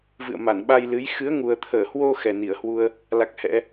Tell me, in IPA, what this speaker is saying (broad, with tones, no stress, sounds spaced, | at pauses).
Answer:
v ɨ̰˧˨ ə̯ m a˧˩ n ɓ a˧ j l ɨ˨˦ j x ɨ˨˦ ə̯ ŋ u˨˩ ə̯ t̪ʰ əː˧˩ h w o˧ x ɛ˨˩ n i˧˩ ə̯ h w u˧ ə̯ | l a˦˥ k̚ h ɛ̰˧˥